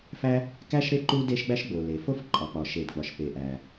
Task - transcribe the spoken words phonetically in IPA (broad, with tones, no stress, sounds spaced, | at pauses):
f æ˥ | k æ˥ ʃ ɾ e˥ ǃ u˥ d e˥ ʃ ɡ͡b æ˥ ʃ ɡ͡b o˩ l e˩ f o˥ f ǃʼ ɒ˩ k͡p ɒ˩ ʃ e˩ d ɡ͡b ɒ˩ ʃ p e˩ ʔ æ˩